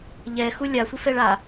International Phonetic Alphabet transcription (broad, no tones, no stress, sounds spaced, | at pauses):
ʎ ɛ x u lʲ a sʷ ɪ f ɛ ɭ a